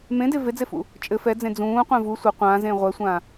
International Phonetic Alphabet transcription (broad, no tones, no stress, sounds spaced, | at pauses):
m ẽ d e v e d͡z e f ṵ | t͡ʃʼ ɘ f ɛ d͡z ẽ d͡z ũː qʷ ẽ v u sʷ ɘ qʷ ãː z ẽː ʁʷ ɛ sʷ ãː